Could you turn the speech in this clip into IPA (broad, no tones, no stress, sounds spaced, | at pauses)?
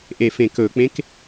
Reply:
ʔ e f ẽ k ɵ k͡p ẽ k